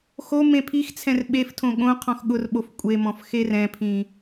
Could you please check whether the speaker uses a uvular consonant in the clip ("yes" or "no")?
yes